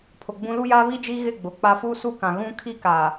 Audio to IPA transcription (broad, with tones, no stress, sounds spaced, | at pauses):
pʰ ʊ˨ ɡ͡b ũ˦ l u˦ j a˦ β i˦ d͡ʒ iː˦ ɣ ɪ˦˨ ɡ͡b ʊ˨ k͡p a˦ f u˦ s u˦ k ã˨ ɣ ũ˦ kʰ i˦ k a˨